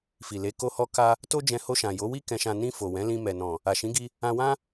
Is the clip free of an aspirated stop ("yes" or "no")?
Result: yes